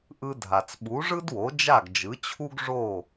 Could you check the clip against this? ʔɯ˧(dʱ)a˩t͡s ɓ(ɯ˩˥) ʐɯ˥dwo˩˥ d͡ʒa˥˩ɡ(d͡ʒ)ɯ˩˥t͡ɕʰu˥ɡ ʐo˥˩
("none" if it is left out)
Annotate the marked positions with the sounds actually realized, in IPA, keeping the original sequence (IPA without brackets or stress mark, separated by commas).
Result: dʱ, u˩˥, d͡ʒ